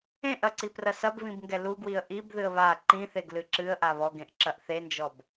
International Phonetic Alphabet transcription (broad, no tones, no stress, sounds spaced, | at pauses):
ẽ ʔ ɐ ǀ i p r ɐ s ɐ b β ĩ b ŋ ɡ ɛ l u ɡ w i ə̯ ʔ i b ð ɨ ə̯ β a ǃ ĩ θ e ɡ l ɨ ǁ ɨ ə̯ ʔ a β ɔ ɡ ẽ ʔ ǁ ɐ ʔ θ e n d͡ʒ ɔ b